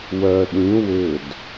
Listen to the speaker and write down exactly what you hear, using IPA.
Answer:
w œ ɗ ĩ w ʏ d

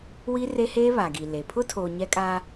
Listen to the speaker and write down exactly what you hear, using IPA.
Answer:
w i˦ r e˦ h eː˦ β a˨ ɡ i˨ l e˨ pʰ ʊ˦ tʰ oː˨ ɲ ɛ˦ kʼ aː˦

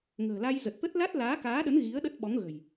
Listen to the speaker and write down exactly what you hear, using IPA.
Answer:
ŋ ə̤ː˨˩ l a˧ j z ə˨˩ t̚ t̪ ə˦˥ t̚ l a˦˥ t̚ l aː˨˦ k aː˨˦ ɗ ə˨˦ n ɣ i˨˦ ə̯ ɗ ə˦˥ t̚ ɓ ɔ˨˦ ŋ ɣ ə̤˨˩ j

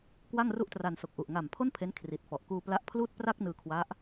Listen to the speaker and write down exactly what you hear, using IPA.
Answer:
k w a˥˩ ŋ r u˥˩ ʔ t r a˧ n s o˨˩ k̚ ʔ u˨˩ ʔ ŋ a˨˩ m pʰ o˥˩ n pʰ e˦˥ n kʰ r i˨˩ t̚ f ɔ˨˩ ʔ k uː˧ p l a˦˥ ʔ pʰ l uː˥˩ t̚ p r a˥˩ k̚ n ɯː˧ kʰ w a˦˥ ʔ

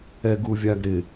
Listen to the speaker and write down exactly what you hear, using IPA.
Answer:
ɛ ɡ u vʲ a ɡ ɾ ɪ

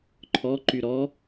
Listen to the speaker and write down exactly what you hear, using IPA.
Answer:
ǃʰ ɔ ǃ y ɾ ɔ

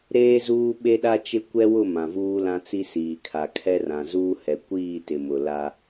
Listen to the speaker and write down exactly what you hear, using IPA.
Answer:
ɾ eː˦ z uː˦ ɓ e˦ ɗ a˦ t͡ʃ ɪ˦ kʷ ɛ˦ w ʊ˦˨ m ã˨ v uː˦ l ã˦ t͡s i˦ s iː˨ kʰ a˨ kʰ ɛ˦ r ã˨ z uː˦ h ɛ˨ kʷ iː˦˨ t ɪ˨ m ʊ˨ l a˦

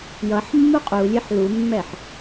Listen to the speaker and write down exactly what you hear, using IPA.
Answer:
j ʌ ħ mː u qʼ u lʲ e ħ l u mː ɛ ħ

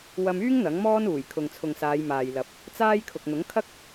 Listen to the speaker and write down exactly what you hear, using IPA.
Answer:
w ɐ˧ m yː˥ ŋ n̪ ɐ˨˥ ŋ m ɔː˥ n uː˨˩ j kʰ ʊ˨ ŋ t͡sʰ ʊ˨ ŋ s aː˨˧ j m aː˨ j l ɐ˨˥ p̚ | t͡s aː˥ j kʰ ʊ˨ k̚ n̪ ʊ˨˥ ŋ kʰ ɐ˥ k̚

